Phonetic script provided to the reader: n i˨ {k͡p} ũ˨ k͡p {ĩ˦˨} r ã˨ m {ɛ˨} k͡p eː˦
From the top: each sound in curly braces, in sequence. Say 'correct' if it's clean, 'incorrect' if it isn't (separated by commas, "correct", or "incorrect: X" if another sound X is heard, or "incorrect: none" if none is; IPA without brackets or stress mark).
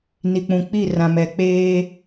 correct, incorrect: i˦˨, correct